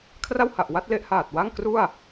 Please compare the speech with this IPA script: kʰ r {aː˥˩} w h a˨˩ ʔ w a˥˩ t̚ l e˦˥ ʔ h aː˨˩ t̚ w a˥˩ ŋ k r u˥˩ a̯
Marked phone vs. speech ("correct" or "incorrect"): incorrect